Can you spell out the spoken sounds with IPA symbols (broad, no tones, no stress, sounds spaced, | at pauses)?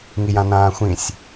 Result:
ŋ i j ã n ãː xʷ ĩ sʲ